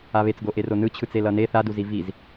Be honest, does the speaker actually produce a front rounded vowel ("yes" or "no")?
no